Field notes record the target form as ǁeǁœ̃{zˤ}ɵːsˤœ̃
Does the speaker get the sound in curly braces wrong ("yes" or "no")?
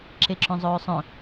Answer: no